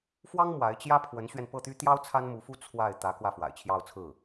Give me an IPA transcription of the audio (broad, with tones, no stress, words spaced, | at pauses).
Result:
fwɑ˥ŋ mwa˧˥ɪ̯t͡ɕjä˥ pʰwə˧˥nɕɥɛ˧npɤ˥˩t̪y˥ t̪jɑ˥ʊ̯ t͡sʰa˥nmu˧˥fu˥ t͡sʰwa˥˩ɪ̯ t̪ä˧˥ kwä˥˩fwa̰˨˩ɪ̯t͡ɕʰjɑ˥˧ʊ̯t͡sʰɹ̩˥˩